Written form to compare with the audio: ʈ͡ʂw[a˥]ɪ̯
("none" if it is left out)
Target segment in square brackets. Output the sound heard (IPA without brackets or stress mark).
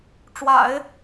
a̰˨˩˦